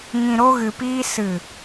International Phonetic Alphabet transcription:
ŋ ĩ˨ ɾ o˧ ɣ ɨ˨ p iː˧ s ɨ˨

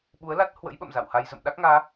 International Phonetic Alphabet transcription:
ɓ u˨˦ ə̯ l a˦˥ t̚ h w ə̰˧˥ j ɓ ə̰˧˨ m z a̰˧˨ w h a˧ j z ə̰˧˨ m ɗ a˦˥ k̚ ŋ aː˨˦

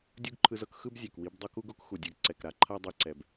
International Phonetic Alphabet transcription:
dʲ u˦ ɡ ǃʰ ɯ˧ z ɤ˦ k x ɯ˦ b zʲ ɛ˨ k w i˧ b dˤ o˦ k u˦ ɡ o˦ k x u˨ dʲ a˦ ɡ ǀ ɛ˨ k ɾ a˧ ǃʰ a˧ dˤ ɯ˦ ǀ ɛ˧ b

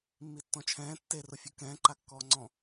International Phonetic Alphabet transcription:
mː i tː ɔ̃ t͡ʃʰ ɛ̃ː tː e r ʊ fʲ ʊ k ɛ̃ː ǃ a kː ɔː ŋ͡ǀ ɔ̃

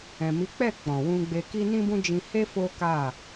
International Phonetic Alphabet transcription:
ɛ̃˨ m i˨˦ k͡p ɛ˦˨ k͡p ɔ̃˨ w ũ˧ ɡ͡b e˧ k i˦ n ĩ˦ b ũ˦ d͡ʒ ĩ˧ h e˦ f o˦ k a˦˨

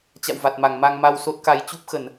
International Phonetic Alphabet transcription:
t͡ɕ a̰˧˨ w v a˨˩ t̚ m a˧˩ ŋ m a˧ ŋ m a˧ w s o˦˥ t̚ k a˧ j t͡ɕ u˦˥ p̚ x ə˧˩˨ n

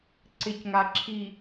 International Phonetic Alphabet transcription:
ǀ ɪ˨ c ŋ a˨ ǁʰ i˨

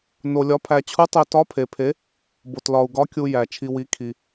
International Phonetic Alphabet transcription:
n o˧ lʲ ɒ˧˥ pʰ æ˧ t͡ɕʰ u˧˥ tˤ e˧ t ɒ˧˥ pʰ e˧ pʰ e˧˥ | b o˧ t l ɒ˧ u̯ ɡ ɒ˧˥ kʲ u˧ j æ˧ t͡ʃʰ i˧ w i˧˥ kʰ i˧

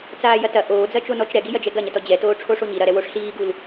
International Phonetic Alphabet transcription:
t͡s aː j ɐ t ɐ ʔ oː d͡z ɐ t͡ʃ o n ɔ t͡ʃ ɾ ɛ ɡ i j ɐ d͡ʒ ɛ ɡ ɐ ɲ ɐ t ɔ d͡ʑ ɛ t oː ʈ͡ʂʰ o ʂ o ɲ i ɾ ɐ ɾ ɛ w o ʂ ɬ iː ɡ u l

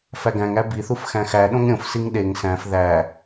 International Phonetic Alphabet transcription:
f æ ɡ æ̃ ŋ æ b i θ u f x æ̃ x æ ɗ õ ŋ ɾʲ õ f s i ŋ ɗ e ŋ s æ̃ f ð æ

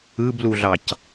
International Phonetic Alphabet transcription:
ɯ b l u ɮ ɑ c

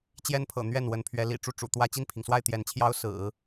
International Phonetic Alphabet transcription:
t͡ɕ j ɛ˥ n pʰ ɤ̰˨˩ n̪ ɥ ɛ˥˩ n w ə˧˥ n pʰ ɥ ɛ˧˥ l ḭ˨˩ ʈ͡ʂ u˥˩ ʈ͡ʂ ṵ˨˩ t̪ w ä˥˧ t͡ɕ i˥˩ n pʰ i˩ ŋ s w a˥˩ ɪ̯ t̪ j ɛ˧˥ n t͡ɕʰ j ɑ˥ ʊ̯ s ɹ̩˨˩˦

